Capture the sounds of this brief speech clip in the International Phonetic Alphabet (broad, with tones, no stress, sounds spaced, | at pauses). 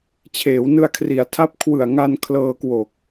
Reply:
t͡ɕʰ eː˩˦ w n ɯ˧ a̯ kʰ r i˩˦ a̯ tʰ a˦˥ p̚ kʰ w ɯ˨˩ a̯ ŋ a˧ n kʰ l ɤː˧ k w oː˨˩ k̚